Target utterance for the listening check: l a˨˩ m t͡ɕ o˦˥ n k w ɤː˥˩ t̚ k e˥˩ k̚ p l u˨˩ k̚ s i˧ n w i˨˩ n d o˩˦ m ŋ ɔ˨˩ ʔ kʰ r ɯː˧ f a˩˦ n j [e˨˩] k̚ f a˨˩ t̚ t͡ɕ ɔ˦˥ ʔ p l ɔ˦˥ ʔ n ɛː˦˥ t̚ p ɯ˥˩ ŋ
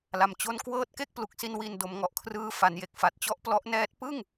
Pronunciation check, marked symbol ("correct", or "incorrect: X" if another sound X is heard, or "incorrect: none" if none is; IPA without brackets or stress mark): correct